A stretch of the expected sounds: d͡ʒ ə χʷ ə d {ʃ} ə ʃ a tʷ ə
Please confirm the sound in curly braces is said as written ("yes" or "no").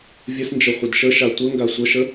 yes